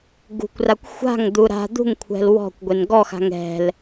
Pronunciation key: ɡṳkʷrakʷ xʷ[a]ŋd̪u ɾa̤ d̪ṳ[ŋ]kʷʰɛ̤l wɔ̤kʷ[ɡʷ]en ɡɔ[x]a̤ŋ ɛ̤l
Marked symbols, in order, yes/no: no, yes, yes, yes

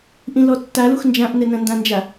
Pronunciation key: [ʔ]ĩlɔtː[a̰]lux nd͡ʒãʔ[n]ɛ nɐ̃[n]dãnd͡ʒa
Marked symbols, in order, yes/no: yes, no, yes, yes

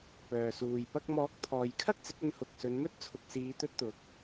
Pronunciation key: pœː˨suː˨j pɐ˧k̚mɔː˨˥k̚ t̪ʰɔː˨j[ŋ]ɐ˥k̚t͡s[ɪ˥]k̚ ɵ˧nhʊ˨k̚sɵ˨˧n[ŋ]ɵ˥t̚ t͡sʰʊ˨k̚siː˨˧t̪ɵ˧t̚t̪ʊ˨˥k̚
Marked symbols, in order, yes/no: no, no, no

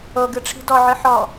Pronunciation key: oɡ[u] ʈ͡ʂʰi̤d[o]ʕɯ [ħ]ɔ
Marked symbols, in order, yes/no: no, no, yes

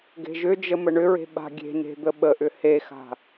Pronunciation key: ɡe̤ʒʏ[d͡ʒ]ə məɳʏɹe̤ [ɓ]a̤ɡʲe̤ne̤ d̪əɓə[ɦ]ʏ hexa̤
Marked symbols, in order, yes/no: yes, yes, no

